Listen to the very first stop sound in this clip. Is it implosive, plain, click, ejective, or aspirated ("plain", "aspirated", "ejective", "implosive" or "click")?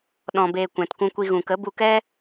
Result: implosive